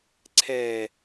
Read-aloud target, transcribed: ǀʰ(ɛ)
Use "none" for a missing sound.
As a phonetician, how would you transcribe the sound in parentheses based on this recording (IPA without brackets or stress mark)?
ɛ